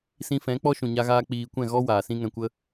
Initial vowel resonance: nasal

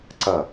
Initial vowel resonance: oral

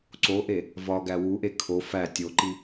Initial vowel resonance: oral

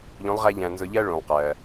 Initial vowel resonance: nasal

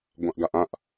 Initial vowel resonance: nasal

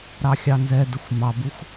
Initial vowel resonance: oral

